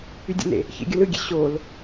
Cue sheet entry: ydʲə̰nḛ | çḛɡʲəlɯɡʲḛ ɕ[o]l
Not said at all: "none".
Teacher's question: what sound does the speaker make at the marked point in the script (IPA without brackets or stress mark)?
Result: o